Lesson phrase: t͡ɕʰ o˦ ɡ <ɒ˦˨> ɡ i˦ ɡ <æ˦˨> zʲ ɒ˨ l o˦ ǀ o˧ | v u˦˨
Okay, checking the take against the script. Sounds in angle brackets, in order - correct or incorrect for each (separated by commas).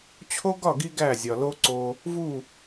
correct, correct